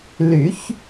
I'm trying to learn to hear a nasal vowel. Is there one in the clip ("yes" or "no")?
no